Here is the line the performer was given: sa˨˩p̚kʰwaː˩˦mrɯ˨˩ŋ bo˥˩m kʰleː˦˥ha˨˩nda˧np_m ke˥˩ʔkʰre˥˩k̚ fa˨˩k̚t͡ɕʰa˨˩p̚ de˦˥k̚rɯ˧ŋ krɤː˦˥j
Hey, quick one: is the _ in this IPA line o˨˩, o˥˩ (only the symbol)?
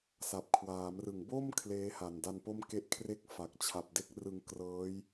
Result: o˥˩